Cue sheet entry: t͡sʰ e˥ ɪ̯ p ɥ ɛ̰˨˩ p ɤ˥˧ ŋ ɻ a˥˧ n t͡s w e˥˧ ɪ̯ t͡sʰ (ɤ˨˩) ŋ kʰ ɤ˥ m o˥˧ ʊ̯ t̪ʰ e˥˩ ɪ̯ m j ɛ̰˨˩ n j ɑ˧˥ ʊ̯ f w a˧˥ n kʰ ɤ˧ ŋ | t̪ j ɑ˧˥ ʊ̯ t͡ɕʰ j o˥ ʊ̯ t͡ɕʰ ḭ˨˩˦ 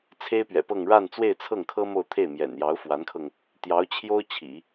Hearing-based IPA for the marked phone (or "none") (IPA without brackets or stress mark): ɤ˥˩